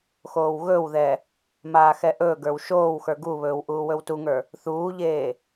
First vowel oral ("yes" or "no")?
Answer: yes